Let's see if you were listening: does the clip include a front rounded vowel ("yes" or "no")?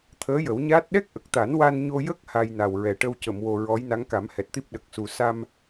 no